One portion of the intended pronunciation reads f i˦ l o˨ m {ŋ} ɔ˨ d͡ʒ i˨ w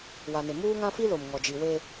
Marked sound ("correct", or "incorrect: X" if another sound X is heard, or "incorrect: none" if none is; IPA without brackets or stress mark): correct